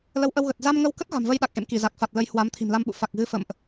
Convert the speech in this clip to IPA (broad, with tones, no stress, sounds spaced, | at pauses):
l ə˨˦ w ʔ ə˧ w ɣ ə˨˩ t̚ z a˧ m ŋ ə˧ w k ə˦˥ t̚ ɣ a̤˨˩ m v ə˧ j ɗ a˨˩ k̚ ʔ ḛ˧˨ m k i˧˩ z a˨˩ k̚ f a˨˩ t̚ l ə˨˦ j h w a˨˦ m t̪ʰ i̤˨˩ m l a˧ m ɓ ṵ˧˨ f a˨˩ k̚ ɣ ɨ˨˦ f ə̰˧˨ m ʔ